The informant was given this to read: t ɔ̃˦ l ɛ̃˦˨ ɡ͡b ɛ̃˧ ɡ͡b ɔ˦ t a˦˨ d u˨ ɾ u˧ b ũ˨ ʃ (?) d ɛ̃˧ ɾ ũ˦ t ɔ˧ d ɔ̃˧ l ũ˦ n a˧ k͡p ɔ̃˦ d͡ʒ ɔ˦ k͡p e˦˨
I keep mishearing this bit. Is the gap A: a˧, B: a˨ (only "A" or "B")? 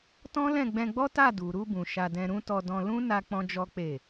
A